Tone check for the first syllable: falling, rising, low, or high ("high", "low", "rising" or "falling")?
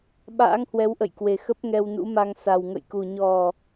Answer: rising